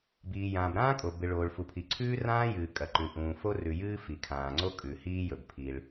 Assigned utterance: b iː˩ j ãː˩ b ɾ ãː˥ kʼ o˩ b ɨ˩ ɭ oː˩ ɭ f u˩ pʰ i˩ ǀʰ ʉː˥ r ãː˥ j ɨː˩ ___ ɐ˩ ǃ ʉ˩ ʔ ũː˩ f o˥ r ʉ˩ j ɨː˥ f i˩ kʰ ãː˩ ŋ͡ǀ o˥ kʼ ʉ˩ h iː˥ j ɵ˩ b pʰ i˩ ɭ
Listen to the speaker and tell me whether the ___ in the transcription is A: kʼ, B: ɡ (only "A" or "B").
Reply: A